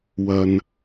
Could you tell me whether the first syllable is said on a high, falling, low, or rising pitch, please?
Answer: low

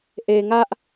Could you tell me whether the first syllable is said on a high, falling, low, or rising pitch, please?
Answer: low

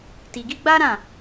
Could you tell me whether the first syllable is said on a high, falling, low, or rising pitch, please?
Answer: low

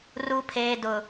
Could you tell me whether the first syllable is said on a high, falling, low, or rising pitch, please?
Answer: low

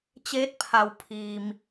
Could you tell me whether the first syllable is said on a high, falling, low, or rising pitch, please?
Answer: rising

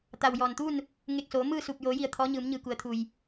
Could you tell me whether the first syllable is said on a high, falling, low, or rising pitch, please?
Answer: low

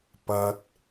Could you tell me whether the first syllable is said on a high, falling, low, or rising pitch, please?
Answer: low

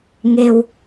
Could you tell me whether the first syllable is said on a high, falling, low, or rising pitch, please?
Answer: low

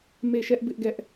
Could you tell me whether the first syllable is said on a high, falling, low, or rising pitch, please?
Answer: falling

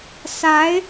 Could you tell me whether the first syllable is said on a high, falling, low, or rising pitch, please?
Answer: rising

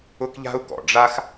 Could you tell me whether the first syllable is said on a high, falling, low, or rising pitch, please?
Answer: high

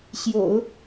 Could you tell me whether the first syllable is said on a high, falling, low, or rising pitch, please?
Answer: low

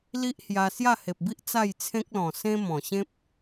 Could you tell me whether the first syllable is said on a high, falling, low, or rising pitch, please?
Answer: high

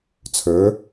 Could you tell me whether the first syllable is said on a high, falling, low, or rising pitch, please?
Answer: rising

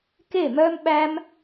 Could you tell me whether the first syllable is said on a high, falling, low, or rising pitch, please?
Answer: falling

